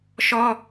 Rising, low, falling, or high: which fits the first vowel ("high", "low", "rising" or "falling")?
high